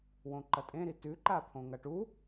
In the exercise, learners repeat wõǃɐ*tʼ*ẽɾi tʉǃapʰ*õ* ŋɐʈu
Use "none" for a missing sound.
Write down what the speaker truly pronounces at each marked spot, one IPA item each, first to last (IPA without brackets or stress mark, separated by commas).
tʼ, õ